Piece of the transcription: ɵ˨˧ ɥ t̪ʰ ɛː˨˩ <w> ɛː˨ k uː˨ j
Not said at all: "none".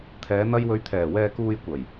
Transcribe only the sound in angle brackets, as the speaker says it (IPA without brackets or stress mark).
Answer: w